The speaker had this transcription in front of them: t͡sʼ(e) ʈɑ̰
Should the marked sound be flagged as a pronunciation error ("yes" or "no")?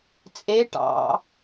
no